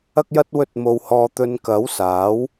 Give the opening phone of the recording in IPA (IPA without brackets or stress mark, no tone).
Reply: ɐ